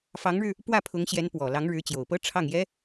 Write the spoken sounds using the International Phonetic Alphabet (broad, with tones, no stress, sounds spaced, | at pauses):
f ɑ˧˥ ŋ ɻ ɻ̩˧ | p w ä˥˩ pʰ ʊ˧˥ ŋ ɕ j ɛ˧˥ n p w ɔ˨˩ l ɑ˧˥ ŋ ɻ ɻ̩˧˥ t͡ɕ j o˨˩ ʊ̯ p ɤ˥ ʈ͡ʂʰ ɑ˥˩ ŋ j ɛ˥